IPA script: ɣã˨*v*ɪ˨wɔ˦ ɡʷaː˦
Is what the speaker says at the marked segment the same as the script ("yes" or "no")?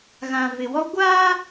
yes